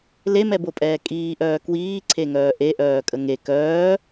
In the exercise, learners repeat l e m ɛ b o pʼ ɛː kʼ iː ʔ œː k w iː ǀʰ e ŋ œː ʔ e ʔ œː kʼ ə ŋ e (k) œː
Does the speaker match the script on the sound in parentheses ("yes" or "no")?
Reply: yes